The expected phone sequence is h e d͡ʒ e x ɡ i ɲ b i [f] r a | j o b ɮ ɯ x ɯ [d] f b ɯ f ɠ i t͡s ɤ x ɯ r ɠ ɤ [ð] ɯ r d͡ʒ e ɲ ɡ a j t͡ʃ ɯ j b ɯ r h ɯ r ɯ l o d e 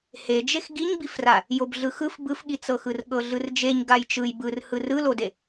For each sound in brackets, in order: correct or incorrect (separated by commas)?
correct, incorrect, incorrect